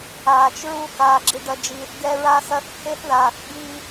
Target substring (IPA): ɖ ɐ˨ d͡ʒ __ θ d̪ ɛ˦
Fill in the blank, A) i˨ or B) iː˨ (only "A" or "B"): B